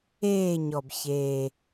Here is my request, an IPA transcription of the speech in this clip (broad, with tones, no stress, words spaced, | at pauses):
eː˦˨ɲɔ˨˩b çeː˨˩